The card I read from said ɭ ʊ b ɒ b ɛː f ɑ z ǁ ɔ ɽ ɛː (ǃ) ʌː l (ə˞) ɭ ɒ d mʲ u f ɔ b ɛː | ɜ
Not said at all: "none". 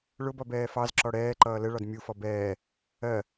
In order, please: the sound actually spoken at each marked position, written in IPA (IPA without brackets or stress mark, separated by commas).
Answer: ǃ, ə